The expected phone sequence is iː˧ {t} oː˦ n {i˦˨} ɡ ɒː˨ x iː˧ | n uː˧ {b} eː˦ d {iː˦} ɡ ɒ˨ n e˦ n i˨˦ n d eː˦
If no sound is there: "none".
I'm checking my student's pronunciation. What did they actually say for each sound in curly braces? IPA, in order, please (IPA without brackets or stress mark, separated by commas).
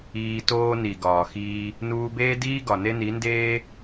t, i˨, b, iː˦